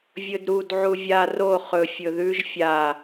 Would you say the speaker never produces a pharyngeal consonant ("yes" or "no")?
no